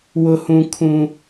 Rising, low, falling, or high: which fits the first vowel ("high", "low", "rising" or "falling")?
high